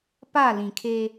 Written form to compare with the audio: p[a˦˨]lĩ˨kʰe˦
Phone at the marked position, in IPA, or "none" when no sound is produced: a˦˨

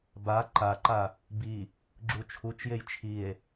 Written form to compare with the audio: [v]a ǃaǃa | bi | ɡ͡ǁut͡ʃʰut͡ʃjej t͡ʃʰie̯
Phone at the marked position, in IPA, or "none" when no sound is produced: b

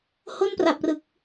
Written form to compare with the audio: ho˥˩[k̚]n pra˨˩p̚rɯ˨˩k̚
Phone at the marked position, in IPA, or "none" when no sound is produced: none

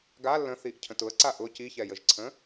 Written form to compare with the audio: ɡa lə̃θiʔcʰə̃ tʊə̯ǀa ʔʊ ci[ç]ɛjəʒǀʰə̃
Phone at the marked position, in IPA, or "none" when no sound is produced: ç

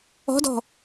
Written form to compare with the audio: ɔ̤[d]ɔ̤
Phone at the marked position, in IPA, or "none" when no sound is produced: d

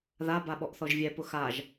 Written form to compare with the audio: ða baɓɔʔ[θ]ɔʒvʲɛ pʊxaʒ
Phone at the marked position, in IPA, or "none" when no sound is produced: θ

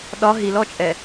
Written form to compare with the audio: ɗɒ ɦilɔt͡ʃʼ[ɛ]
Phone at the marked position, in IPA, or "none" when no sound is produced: ɛ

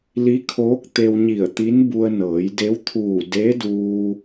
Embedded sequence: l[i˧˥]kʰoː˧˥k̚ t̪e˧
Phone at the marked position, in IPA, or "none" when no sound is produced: i˧˥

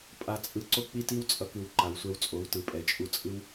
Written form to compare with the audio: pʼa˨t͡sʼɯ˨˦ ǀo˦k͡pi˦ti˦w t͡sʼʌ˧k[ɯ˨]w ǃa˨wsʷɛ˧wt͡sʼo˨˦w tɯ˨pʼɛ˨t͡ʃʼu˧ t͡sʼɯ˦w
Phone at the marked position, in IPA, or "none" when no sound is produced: ɯ˨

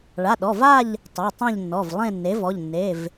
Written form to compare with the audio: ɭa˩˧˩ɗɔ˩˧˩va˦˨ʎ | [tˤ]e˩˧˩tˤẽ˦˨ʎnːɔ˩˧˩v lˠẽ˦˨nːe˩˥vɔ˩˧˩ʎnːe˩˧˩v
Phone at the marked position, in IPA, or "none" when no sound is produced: tˤ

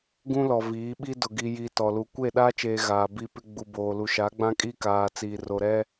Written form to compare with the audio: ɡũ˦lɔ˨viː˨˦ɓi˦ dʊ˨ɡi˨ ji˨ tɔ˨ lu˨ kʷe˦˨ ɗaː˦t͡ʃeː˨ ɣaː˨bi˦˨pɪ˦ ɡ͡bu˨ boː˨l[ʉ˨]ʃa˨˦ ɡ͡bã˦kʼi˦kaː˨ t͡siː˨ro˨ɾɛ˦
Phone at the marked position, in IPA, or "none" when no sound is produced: u˨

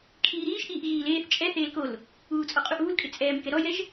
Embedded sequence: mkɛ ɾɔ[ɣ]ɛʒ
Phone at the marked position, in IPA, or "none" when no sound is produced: j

